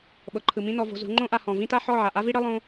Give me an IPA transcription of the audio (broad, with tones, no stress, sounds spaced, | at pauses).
ɓ ɤ˨ ǃʰ ɯ˨ m ĩ˦ n ɔ˧ v o̤˧ z ṳ˨˦ ŋ͡ǃ õ˦ ʔ a˧ h ɔ̃˨ v ĩ˦ t a˦ ħ ɔ˦˨ ʕ a˨ ʔ a˦ v i˦ ɽ ɤ˦ lˠ õ˦